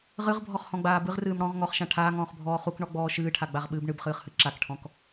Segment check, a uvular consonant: present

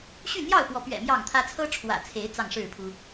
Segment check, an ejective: absent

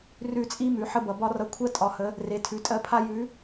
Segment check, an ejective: present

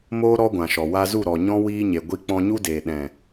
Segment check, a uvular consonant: absent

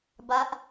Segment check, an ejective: absent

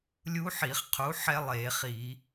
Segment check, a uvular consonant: present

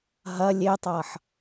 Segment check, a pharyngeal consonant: present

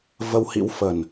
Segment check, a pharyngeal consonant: absent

